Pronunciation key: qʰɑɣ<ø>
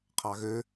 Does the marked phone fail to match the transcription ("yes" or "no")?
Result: no